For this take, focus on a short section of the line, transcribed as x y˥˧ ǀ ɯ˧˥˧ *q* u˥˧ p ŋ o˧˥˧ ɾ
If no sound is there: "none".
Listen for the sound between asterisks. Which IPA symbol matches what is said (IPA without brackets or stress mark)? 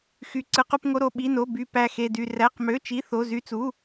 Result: q